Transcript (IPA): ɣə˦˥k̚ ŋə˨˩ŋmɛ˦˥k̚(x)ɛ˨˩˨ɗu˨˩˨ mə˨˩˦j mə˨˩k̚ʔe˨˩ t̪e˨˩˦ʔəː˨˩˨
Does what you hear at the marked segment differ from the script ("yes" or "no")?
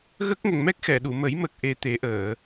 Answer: no